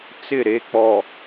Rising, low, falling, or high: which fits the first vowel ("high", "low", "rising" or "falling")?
falling